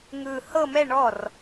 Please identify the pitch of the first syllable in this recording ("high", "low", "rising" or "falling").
low